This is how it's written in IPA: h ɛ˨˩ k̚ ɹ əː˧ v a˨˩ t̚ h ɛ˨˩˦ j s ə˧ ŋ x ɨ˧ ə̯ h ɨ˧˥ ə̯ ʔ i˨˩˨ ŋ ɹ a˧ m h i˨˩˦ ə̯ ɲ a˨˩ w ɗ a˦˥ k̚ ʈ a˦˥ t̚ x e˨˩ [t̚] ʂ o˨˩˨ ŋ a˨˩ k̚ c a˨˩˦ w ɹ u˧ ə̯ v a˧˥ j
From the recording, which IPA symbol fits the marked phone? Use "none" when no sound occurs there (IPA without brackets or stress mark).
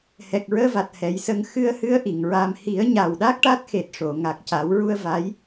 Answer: t̚